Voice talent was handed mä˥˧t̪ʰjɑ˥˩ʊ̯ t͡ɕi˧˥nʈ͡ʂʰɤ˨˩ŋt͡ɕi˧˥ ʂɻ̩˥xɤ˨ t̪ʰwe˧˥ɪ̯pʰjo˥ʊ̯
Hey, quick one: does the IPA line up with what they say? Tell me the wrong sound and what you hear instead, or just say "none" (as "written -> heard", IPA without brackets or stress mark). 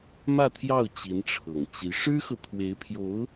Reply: o˥ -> o˧˥